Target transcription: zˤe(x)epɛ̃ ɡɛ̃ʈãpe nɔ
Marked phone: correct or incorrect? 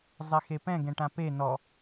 correct